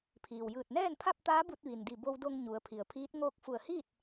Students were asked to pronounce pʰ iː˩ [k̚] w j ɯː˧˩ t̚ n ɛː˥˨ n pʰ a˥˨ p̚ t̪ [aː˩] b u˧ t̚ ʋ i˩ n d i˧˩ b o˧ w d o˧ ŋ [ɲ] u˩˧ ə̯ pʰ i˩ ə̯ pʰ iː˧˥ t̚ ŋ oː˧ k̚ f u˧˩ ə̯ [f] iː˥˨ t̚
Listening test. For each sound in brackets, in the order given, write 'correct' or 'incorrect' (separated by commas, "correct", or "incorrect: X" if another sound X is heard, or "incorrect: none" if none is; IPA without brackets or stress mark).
incorrect: none, incorrect: aː˧˥, correct, incorrect: h